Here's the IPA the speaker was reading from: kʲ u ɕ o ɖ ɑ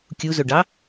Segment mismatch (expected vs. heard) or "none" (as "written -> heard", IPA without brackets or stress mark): ɕ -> z